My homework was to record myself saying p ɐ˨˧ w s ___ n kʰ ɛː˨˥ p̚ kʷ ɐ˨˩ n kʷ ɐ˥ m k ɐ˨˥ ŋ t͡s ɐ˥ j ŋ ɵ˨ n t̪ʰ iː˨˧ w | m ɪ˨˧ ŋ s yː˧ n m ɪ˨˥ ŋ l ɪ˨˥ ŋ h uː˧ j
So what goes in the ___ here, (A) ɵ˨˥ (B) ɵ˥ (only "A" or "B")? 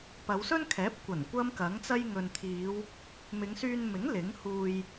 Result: B